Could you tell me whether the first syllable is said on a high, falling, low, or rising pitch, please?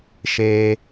low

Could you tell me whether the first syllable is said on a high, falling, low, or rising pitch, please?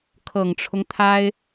low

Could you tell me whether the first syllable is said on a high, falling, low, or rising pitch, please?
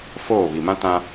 falling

